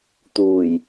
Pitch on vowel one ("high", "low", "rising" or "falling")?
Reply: low